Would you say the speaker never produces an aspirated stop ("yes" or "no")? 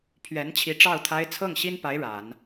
no